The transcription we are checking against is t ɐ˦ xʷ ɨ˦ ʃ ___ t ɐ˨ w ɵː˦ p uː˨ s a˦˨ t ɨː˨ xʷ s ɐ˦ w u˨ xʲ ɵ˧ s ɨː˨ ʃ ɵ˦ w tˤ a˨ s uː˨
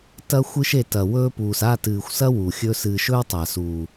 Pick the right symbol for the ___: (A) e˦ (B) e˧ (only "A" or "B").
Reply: B